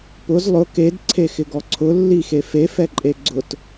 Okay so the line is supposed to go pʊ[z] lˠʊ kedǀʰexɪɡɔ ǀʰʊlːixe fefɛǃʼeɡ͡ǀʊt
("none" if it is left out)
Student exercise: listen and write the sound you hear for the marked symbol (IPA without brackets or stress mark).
z